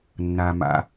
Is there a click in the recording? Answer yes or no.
no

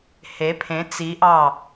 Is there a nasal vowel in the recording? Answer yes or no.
yes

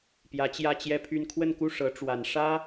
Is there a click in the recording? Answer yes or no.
no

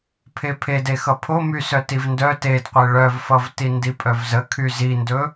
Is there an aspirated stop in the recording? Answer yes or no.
yes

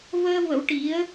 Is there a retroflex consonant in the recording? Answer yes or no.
yes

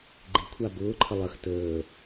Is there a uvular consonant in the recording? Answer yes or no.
no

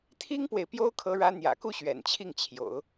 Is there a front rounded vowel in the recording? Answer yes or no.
no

